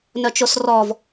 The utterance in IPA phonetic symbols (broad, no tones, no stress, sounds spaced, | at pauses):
n œ t͡ʃ o s r ɔ v